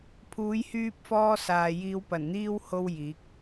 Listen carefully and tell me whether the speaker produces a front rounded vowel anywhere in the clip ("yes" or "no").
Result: yes